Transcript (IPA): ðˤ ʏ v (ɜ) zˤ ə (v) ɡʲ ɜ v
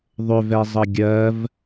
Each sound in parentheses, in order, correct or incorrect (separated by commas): incorrect, incorrect